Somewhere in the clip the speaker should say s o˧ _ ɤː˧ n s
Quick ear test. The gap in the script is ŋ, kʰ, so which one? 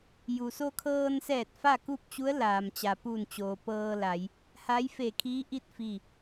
kʰ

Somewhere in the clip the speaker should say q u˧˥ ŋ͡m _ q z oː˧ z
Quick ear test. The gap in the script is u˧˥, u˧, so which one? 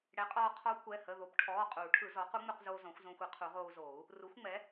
u˧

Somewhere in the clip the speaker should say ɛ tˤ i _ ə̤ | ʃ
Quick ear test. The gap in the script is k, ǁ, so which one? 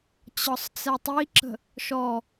ǁ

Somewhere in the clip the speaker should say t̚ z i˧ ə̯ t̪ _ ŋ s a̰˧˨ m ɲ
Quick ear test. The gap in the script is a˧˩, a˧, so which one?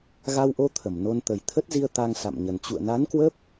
a˧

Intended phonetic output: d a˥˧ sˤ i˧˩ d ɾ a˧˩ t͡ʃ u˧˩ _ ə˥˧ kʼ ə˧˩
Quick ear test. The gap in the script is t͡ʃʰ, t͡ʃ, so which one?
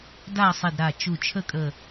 t͡ʃʰ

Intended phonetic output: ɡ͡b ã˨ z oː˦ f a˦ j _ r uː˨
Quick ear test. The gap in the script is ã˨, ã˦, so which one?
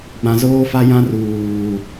ã˦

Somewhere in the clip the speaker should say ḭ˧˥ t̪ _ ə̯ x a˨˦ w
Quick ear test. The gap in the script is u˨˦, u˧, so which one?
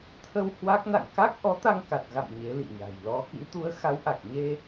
u˨˦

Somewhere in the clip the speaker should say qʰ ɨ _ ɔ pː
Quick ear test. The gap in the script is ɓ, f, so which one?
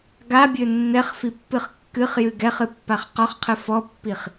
f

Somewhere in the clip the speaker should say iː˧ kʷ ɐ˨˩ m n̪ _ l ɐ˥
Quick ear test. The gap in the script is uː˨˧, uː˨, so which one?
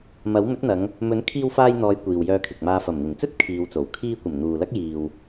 uː˨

